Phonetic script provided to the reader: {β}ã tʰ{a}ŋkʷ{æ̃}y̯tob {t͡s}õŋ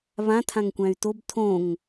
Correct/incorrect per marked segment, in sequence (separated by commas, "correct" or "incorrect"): correct, incorrect, correct, incorrect